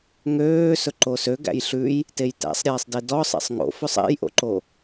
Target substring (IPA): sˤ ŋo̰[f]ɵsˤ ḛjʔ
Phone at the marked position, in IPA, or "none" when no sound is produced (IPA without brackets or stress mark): f